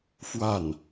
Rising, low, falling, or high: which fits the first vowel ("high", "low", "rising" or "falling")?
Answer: falling